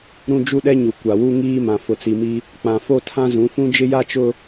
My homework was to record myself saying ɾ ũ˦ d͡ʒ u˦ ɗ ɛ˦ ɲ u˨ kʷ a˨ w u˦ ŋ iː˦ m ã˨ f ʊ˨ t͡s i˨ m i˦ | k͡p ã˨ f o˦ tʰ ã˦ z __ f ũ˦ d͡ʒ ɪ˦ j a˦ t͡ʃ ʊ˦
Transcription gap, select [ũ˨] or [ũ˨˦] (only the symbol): ũ˨˦